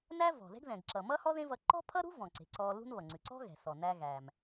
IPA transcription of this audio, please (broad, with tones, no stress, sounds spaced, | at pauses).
n æ˥ v ɔ̤˩ ð ɛ̤˥ ɡ ð ɛ̃˩ ɡ ǁ ʌ˩ m ʌ˥ h ɔ˥ ð ẽ˥ v ʌ˧ ǃ ɔ̤˥ pʰ ʌ˥ ɾ ṳ˥ v ɔ̃˩ ǀ e̤˩ ǀ ɔ˧ l ṳ˥ n β ʌ˩ ŋ͡ǀ ʉ˩ ǀ ɔ̤˥ ɣ ɛ̤˩ s ɔ˩ n æ˧ ɣ æ˩ m